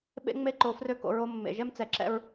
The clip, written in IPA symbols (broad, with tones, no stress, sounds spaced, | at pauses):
ɓ ḛ˦ ŋ͡m e˦ ǃ o˨ f r ø˦ k o̰˨ ɹ o˦ mː ḛ˨ ʒ ɛ˦ m t͡s ɛ˨ ǁ ɛ̰˦ ɹ